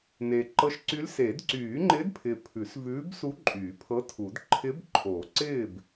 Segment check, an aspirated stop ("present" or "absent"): present